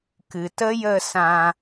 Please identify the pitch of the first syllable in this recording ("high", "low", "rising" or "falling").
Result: low